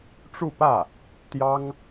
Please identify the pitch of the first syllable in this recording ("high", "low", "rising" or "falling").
falling